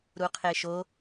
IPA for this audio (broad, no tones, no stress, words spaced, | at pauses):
ɾuqʰeʃo